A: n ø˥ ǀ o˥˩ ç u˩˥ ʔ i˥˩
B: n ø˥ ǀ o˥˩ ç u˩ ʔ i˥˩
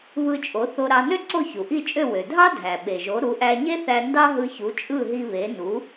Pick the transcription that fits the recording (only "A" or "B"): B